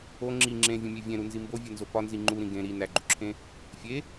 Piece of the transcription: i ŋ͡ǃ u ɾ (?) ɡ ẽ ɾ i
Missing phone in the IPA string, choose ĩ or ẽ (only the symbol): ĩ